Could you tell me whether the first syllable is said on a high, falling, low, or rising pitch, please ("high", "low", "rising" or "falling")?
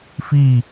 falling